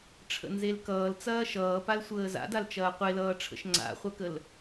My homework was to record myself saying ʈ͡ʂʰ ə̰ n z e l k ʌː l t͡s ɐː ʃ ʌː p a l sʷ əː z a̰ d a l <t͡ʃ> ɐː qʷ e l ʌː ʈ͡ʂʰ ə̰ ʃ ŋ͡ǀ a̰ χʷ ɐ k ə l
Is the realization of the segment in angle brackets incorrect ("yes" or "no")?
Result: no